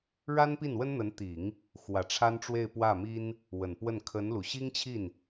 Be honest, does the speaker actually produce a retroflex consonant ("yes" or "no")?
yes